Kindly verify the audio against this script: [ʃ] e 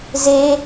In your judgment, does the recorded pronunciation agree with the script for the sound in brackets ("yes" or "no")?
no